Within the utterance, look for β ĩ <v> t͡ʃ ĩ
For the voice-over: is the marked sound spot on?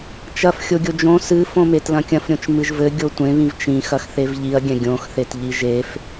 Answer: yes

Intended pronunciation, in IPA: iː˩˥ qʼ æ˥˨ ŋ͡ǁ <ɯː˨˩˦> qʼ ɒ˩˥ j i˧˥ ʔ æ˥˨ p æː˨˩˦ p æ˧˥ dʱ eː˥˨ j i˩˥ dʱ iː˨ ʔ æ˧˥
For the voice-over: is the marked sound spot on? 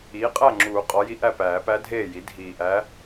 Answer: no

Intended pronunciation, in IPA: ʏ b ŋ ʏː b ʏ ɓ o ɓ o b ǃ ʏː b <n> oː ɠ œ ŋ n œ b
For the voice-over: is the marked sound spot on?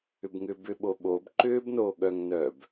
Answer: yes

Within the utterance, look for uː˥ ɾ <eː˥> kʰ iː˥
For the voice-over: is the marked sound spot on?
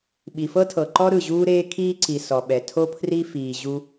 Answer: yes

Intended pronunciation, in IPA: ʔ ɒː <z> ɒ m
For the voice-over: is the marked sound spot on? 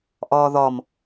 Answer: no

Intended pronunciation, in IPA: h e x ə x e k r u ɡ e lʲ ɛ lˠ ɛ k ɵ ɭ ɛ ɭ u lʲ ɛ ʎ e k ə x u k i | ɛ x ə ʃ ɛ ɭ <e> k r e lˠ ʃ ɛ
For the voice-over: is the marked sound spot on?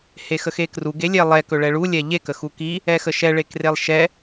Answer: yes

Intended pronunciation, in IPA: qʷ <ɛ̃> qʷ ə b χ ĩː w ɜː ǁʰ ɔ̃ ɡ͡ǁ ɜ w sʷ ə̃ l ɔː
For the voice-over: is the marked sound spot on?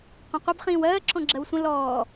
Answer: no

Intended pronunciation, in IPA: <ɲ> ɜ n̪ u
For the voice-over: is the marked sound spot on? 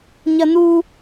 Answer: yes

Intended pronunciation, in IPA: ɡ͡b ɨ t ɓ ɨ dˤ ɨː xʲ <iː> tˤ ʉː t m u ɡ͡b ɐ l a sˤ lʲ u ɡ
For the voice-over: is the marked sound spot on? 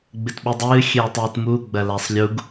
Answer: no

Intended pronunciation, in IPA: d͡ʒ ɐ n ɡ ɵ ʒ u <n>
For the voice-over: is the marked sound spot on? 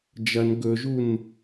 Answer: yes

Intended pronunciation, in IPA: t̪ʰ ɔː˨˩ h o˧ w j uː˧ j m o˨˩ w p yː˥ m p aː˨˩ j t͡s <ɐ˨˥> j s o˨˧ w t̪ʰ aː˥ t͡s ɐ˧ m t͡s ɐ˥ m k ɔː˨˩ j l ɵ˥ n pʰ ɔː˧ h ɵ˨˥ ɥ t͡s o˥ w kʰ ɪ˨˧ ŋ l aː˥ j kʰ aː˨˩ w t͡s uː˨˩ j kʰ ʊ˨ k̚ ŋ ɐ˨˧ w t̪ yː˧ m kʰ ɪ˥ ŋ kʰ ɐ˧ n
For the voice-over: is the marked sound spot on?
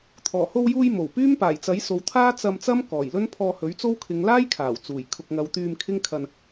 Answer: yes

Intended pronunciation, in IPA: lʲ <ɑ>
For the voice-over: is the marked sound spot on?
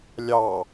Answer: yes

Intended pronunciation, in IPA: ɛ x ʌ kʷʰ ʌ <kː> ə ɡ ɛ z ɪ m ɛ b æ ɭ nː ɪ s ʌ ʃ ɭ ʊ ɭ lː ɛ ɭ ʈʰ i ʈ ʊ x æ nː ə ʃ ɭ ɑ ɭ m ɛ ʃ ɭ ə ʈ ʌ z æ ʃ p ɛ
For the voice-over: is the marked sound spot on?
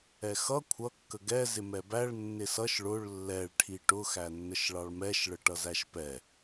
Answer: yes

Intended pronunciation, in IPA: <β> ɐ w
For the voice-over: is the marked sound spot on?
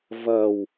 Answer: no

